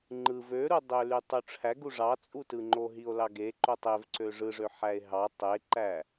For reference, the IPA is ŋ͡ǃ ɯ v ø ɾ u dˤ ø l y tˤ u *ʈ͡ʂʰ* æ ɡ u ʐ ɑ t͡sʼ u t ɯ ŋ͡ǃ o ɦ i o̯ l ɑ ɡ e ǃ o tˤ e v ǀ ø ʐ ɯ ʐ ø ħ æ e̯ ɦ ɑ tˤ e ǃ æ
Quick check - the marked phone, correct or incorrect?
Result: correct